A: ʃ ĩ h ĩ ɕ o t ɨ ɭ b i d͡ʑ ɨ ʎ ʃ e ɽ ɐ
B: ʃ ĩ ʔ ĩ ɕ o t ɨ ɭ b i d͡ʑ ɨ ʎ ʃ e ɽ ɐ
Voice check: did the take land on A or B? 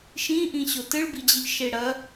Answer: B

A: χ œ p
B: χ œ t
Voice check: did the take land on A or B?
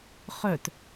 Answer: B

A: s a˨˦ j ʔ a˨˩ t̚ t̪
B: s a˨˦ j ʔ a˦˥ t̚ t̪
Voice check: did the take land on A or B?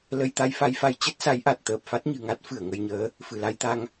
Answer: A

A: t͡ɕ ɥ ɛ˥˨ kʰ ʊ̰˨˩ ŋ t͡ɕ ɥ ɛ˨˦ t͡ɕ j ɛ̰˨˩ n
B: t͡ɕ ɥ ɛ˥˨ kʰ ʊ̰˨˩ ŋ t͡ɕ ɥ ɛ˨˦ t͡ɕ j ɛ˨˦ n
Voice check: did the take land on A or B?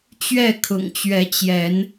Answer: B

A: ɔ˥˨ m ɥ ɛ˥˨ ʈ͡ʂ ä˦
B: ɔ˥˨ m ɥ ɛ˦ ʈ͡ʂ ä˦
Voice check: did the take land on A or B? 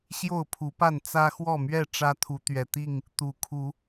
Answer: A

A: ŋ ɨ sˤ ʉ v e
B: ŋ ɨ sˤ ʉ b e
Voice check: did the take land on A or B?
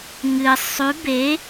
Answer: B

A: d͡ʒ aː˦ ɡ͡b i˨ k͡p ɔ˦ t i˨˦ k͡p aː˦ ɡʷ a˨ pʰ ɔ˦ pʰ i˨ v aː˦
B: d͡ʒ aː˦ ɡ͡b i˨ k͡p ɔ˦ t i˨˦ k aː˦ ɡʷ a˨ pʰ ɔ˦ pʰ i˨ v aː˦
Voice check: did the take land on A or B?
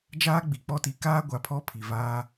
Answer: B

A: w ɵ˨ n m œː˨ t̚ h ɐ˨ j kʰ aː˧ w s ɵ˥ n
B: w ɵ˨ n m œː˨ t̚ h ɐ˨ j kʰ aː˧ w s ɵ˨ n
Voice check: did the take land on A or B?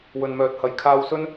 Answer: A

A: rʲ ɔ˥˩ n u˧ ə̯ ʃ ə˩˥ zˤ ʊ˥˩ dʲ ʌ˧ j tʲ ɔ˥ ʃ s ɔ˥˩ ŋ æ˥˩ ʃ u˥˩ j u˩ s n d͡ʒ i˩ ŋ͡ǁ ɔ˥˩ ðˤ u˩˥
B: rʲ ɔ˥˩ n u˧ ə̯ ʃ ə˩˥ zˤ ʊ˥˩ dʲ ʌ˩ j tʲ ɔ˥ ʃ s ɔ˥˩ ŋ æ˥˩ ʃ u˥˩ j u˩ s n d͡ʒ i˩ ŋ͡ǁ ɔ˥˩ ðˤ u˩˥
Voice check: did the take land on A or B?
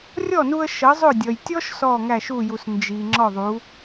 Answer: B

